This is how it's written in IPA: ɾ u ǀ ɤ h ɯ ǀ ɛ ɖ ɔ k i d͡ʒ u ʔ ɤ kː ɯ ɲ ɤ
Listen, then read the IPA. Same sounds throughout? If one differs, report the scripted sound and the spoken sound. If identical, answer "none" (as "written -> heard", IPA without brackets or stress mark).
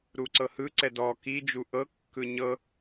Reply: ɖ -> d